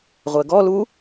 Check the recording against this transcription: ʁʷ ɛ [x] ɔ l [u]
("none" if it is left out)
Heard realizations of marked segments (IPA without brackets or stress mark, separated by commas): ɡ, u